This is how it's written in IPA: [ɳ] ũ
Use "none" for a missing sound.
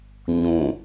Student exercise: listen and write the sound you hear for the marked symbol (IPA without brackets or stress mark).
ɲ